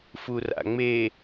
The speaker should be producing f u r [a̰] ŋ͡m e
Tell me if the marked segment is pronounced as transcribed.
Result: yes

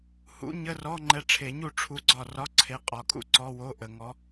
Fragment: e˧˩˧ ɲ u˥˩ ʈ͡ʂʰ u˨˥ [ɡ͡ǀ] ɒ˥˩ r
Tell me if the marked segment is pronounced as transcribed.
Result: yes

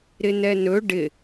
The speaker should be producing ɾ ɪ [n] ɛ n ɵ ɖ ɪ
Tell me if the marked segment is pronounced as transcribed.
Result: yes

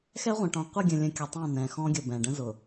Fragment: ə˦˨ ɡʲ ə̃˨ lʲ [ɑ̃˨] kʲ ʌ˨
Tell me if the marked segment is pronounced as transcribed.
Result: no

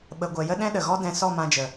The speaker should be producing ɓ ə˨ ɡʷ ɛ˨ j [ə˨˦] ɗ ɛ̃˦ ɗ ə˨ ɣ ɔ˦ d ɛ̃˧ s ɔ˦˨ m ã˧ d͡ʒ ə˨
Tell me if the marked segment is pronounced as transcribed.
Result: no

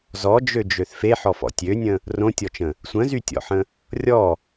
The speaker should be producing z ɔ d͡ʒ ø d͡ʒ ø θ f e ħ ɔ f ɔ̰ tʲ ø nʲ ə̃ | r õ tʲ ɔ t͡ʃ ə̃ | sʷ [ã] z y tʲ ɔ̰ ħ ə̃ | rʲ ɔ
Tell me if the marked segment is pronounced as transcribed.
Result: no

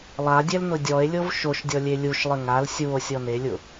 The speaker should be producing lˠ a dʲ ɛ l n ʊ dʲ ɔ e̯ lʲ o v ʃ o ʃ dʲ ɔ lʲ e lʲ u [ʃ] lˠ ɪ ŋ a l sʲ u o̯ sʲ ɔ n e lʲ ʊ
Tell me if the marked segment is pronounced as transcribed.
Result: yes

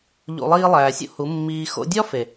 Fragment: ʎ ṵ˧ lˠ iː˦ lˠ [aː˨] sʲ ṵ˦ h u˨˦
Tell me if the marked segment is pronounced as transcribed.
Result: no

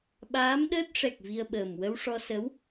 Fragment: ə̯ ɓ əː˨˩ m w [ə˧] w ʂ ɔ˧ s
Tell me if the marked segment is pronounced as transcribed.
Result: yes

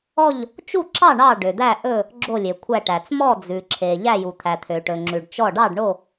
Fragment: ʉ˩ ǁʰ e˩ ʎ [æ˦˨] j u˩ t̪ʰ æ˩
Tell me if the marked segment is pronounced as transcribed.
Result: yes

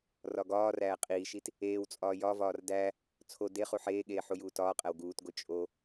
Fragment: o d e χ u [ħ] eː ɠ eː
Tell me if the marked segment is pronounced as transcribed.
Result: yes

